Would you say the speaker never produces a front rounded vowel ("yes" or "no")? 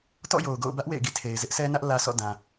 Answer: yes